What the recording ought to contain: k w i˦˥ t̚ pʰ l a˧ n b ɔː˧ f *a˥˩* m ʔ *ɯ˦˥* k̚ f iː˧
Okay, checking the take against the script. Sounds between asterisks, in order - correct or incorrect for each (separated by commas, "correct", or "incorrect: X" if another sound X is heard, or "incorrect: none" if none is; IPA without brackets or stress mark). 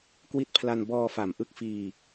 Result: incorrect: a˨˩, correct